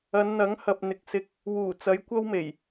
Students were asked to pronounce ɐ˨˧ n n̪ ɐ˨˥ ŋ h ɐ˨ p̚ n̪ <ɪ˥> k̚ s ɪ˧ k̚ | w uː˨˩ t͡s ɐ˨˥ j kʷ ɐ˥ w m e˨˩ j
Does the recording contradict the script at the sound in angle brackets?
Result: yes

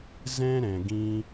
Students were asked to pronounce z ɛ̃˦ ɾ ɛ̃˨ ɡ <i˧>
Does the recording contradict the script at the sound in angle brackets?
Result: yes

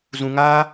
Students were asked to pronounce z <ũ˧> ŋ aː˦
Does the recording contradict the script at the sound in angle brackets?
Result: no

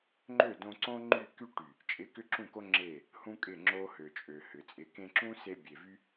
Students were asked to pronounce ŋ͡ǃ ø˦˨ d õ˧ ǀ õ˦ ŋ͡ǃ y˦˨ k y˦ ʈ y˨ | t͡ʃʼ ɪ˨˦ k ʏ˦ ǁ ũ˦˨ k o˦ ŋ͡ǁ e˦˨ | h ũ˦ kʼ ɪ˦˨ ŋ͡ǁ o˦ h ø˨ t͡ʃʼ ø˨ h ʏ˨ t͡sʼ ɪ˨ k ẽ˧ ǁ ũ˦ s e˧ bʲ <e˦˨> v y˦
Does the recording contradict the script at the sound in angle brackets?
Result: yes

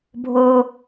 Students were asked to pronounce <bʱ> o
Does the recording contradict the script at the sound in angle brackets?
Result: no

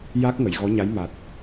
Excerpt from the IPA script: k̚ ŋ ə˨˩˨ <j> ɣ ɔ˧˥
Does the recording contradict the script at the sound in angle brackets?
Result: no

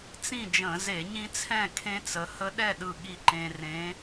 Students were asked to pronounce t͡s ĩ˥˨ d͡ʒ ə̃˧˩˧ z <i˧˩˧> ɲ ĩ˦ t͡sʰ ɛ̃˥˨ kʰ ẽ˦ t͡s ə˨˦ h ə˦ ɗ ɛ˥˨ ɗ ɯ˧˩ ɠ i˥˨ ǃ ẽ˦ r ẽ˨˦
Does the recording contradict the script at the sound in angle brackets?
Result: yes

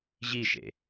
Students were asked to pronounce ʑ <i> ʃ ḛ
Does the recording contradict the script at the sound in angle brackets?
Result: no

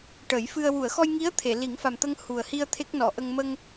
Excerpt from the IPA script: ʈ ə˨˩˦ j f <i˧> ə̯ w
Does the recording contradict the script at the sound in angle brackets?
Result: yes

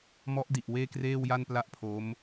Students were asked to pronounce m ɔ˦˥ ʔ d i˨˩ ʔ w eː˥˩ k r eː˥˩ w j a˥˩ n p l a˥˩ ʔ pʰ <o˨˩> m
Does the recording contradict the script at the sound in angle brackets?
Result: yes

